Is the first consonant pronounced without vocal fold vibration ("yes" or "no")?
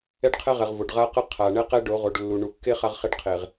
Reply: no